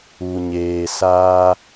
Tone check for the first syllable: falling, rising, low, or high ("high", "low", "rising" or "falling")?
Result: low